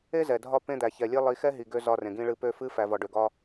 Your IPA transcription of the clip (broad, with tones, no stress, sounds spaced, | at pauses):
e˦ z ɛ˨ dʱ ɒ˦˨ p ẽ˦ d̪ æ˨ ç ɛ˨ lʲ e˦ lˠ i˨˦ x ɛ˦ ɦ i˨ ɡ ø˦ z ɒ˦ r ẽ˨ ɡ ĩ˦ ɭ ɨ˦ p ø˦ f ɨ˦ f æ˨ v ɒ˨ ɖ ø˨ ɡ ɒ˦